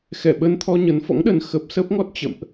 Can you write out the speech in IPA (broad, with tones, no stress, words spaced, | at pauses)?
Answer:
xɛ˧˩ɓə˧n t̪ʰɔ˧ɲə˨˦nfɔ̰˧˥ŋ ɗə˨˦n xə˦˥p̚ sə˦˥p̚ŋɔ˦˥t̚ t͡ɕə̰˧˨mʔ